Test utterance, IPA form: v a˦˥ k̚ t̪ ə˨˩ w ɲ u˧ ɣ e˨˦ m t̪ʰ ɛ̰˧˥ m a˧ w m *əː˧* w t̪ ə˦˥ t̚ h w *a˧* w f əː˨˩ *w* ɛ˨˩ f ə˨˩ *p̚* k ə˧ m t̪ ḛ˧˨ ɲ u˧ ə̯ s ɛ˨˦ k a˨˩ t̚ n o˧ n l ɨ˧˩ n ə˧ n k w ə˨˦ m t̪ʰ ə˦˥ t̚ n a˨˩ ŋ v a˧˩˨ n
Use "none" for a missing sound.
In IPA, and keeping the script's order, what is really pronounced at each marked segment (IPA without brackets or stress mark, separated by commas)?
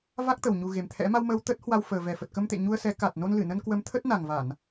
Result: əː˧, a˧, v, t̚